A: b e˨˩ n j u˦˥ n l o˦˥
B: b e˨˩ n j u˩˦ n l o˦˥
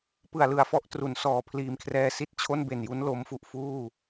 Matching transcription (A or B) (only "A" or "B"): A